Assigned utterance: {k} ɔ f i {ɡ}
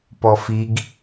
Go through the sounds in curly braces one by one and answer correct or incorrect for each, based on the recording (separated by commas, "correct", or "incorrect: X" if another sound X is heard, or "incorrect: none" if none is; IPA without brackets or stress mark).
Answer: incorrect: p, correct